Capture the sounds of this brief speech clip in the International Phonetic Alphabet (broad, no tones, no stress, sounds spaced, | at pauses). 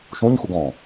ʃ ũ ɲ x u ɡ ɔ̃